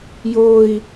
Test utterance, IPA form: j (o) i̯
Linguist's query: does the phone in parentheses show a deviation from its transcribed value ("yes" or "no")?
no